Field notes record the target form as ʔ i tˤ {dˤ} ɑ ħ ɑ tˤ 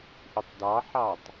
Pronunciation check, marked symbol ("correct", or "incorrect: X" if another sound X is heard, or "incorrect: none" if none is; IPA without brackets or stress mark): incorrect: d